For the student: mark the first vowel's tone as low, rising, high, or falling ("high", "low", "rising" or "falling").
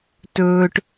low